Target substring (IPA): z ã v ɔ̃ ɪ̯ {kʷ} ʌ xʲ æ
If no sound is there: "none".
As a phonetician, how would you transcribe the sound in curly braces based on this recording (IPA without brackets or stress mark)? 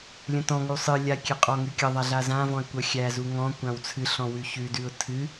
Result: kʷ